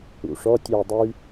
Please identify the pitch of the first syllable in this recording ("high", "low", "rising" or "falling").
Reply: low